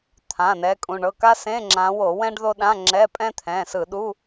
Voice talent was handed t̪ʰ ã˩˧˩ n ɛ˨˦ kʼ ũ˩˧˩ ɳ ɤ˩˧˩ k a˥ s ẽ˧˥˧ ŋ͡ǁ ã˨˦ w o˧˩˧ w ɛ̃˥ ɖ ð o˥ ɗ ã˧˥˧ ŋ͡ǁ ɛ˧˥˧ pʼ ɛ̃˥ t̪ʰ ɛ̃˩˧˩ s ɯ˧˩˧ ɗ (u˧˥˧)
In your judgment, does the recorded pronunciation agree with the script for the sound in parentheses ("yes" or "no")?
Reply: yes